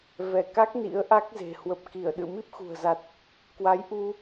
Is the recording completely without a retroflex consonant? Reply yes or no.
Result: yes